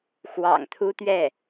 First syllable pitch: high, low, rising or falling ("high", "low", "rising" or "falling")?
low